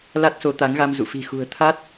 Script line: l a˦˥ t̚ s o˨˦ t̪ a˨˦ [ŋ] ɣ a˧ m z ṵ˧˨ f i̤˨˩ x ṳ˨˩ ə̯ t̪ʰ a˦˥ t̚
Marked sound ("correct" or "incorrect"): correct